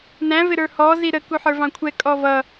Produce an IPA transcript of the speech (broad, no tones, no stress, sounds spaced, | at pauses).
n æ̃ v ɪ ɾ ə˞ h ɔ z i ɾ ə k u ħ ə˞ v ɑ̃ kʷʰ ɛ kʼ ɔ v ʌ